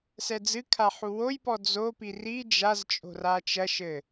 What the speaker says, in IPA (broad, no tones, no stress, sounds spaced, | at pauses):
s ɛ d͡z ɨ kʰ a ħ u w o j p ɔ d͡z o p i r i d͡ʒ a z t͡ʃʼ o̤ r a t͡ʃ ɐ ʃ ɘ